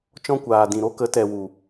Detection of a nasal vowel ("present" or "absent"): present